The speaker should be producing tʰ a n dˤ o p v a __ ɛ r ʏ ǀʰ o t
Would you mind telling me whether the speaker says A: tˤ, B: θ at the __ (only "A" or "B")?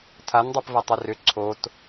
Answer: A